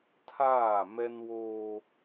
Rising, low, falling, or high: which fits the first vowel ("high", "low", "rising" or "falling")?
falling